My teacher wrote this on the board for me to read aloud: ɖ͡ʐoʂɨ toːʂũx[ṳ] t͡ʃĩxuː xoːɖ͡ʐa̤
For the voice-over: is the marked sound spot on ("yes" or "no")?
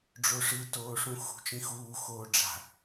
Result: yes